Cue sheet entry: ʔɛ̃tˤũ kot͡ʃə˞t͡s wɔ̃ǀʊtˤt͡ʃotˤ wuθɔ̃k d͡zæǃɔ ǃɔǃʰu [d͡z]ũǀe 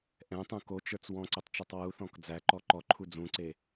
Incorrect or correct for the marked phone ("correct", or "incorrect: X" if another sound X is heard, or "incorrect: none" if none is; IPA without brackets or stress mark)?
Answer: correct